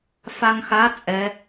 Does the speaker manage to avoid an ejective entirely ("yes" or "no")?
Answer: no